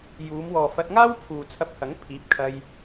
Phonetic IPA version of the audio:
juː˨˧mwɔː˨fɐ˧t̚ŋaː˥w pʰuː˨t͡sʰɐ˧p̚hɐ˨˥ŋ pʰiː˨˥p̚kʰɐ˧j

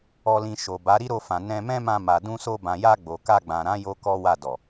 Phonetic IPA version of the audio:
ɔ˧lĩ˧ ʃo˨ba˨˦ ɾi˦ɾo˧fã˨nɛ̃˧ mɛ̃˦mã˧ma˨ dũ˧so˧bã˨ja˧ ɡ͡bo˨ ka˧ɡ͡bã˨ɾã˨˦ jo˦kɔ˦ wa˦˨dɔ˨

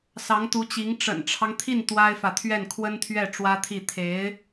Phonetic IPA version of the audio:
sɑ˧˥ŋt̪u˧˥t͡ɕi˧˥ŋ ʈ͡ʂə̰˨˩nʈ͡ʂʰɑ˦ŋt̪ʰi˥˩n t̪wa˥ɪ̯fä˨ t̪ʰɥɛ˥˩nkʰwə˥nt̪ʰɥɛ˥˩ ʈ͡ʂwä˥t̪ʰi˥˩ t̪ʰe˧˥ɪ̯

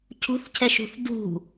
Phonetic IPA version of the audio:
cʰṳθcʰɛʃṳθ dṳ

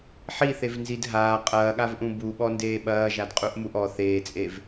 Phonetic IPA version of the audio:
ħiθevnzid ɦaː qʼɐːɠavʔũ buɓɔndeː ɓɐːʒadqʼuʔmuʔ ɔ θeːt͡sʼev

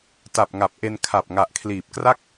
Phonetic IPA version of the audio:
ta˨˩p̚ŋa˨˩p̚ʔe˧n kʰa˨˩p̚ ŋa˨˩ʔkʰliː˨˩p̚kra˥˩k̚

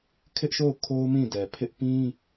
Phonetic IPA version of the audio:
kʰɪ˦ʔʃo˦˨ʊ̯ kʰo˦ʊ̯mĩ˦˨dɛ˨pʰɪ˦ʔ pĩ˦

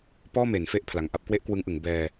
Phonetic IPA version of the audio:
pɔː˥˩me˩˦nfe˦˥ʔ pʰla˨˩ŋʔa˥˩p̚ kwe˥˩ʔkwɯ˦˥ŋʔɯ˩˦ŋ bɛː˧

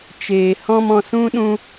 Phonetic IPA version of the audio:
t͡ʃeː˨ hɔ̃˦mɔ̃˧ sũ˦ɗũ˦

